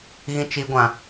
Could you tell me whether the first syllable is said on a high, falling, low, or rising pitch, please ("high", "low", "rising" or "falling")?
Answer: high